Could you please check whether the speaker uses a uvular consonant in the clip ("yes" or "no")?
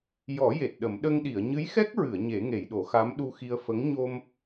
no